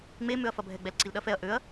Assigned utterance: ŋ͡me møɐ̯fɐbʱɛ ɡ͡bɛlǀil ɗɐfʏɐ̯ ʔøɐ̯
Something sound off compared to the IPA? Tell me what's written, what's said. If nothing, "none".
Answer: ʏ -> ɛ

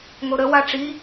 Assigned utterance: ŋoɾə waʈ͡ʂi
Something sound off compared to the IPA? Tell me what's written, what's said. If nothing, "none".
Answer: none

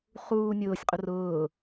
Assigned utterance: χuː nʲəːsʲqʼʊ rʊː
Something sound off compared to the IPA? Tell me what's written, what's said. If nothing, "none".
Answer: əː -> ʊː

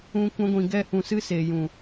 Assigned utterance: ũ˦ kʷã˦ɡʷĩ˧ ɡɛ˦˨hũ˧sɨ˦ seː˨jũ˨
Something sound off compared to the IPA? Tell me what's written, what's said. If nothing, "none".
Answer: none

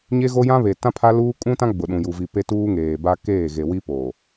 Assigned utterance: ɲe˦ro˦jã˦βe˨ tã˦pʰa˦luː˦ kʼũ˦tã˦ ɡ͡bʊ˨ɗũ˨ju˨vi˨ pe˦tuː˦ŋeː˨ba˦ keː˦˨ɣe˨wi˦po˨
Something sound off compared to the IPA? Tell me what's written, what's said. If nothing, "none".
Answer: r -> ɣ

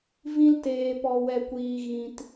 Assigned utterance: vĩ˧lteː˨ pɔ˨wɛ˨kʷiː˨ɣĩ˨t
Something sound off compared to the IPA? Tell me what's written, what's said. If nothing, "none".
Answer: none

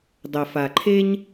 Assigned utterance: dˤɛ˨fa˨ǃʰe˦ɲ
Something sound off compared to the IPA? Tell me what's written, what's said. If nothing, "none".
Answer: none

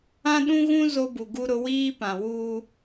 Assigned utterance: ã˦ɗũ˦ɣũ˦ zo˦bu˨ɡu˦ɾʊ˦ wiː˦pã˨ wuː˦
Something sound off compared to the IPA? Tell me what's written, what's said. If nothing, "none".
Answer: none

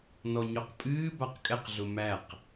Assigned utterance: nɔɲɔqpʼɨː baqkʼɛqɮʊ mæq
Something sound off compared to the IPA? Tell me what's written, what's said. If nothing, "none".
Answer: none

